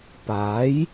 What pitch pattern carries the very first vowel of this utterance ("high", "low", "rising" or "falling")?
rising